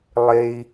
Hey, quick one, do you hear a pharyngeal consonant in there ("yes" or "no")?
no